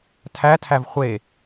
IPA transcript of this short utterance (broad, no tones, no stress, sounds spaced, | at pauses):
tʰ æ tʰ æ v χʷ e